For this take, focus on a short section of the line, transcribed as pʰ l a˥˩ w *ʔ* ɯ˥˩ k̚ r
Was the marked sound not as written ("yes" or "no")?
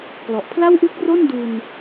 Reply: no